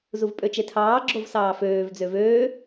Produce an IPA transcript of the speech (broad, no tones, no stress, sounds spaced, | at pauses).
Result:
z u v pʼ ø t͡ʃ e tʰ ɑː ɡ͡ǁ o v s ɑː f øː v d͡z ø v øː